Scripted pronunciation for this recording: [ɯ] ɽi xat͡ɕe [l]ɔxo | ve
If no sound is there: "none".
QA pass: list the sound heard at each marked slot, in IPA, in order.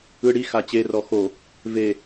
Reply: ɯ, r

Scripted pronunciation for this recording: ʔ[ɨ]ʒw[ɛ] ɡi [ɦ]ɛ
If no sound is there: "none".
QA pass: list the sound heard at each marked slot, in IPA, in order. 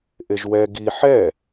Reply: e, ɛ, ħ

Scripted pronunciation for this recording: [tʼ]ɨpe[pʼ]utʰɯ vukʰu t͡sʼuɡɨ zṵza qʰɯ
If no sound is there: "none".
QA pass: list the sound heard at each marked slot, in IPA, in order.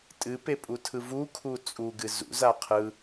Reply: tʼ, pʼ

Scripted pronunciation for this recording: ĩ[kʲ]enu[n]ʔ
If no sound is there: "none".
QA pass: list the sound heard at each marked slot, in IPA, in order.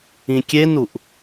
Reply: kʲ, none

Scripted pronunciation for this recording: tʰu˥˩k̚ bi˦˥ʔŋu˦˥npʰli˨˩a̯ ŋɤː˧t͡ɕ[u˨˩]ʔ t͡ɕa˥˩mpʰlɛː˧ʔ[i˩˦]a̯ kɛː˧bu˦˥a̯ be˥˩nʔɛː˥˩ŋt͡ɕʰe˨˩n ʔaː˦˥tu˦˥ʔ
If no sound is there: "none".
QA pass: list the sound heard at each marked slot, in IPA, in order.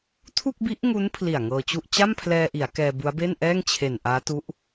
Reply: u˥˩, i˩˦

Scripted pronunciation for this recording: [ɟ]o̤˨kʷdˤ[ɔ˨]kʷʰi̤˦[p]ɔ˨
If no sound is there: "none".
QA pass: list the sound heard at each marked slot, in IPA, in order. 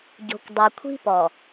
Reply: ɟ, o˨, p

